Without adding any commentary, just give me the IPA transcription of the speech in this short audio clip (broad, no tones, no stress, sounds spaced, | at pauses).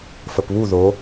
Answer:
f ə p β u ð o